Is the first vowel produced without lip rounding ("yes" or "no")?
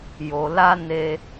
no